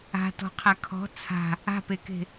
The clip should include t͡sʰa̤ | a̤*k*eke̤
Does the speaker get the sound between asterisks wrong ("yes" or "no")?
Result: yes